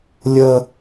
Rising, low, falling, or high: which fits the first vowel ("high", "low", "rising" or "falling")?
high